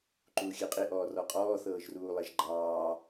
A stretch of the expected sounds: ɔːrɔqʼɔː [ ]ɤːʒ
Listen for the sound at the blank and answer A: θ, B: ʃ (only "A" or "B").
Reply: A